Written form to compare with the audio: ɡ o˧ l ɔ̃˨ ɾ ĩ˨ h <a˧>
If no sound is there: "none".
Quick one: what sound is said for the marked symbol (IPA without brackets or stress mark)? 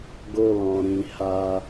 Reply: a˧